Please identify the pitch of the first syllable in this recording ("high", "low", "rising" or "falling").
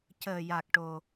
low